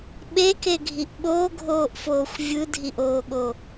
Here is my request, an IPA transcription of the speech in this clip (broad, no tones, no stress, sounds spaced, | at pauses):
ɓ e k e ɡʱ i ʔ ɓ oː ɡʱ oː ʔ f oː xʷ vʲ ɯ dʱ i ʔ oː ɠ o